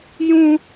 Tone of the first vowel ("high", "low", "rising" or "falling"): high